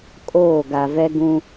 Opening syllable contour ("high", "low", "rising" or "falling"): falling